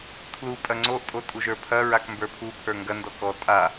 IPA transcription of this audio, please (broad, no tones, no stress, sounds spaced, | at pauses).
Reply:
tʰ l u pʼ ɐ ŋ͡ǀ o ʔ tʼ o tʼ u ʒ ə˞ pʰ ɐ ɹ a k m b ə˞ pʰ u pʰ ə˞ ŋ ɡ ɐ n d ɔ k ɔ tʼ a